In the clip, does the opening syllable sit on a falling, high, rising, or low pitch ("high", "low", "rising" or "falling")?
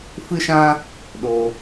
high